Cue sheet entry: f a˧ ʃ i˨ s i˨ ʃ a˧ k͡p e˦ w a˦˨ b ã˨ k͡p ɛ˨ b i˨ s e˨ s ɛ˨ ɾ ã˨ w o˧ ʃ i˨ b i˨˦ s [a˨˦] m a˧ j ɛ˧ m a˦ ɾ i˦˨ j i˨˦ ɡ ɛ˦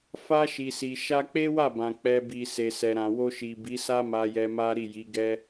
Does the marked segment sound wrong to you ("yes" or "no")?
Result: yes